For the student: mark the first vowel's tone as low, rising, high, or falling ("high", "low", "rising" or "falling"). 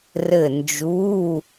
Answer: falling